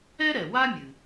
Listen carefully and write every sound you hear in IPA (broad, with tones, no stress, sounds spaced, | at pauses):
ɛ˥ ɾ ɛ˩ w a˥ mʲ ɨ˩